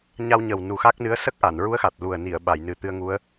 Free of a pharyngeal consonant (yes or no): yes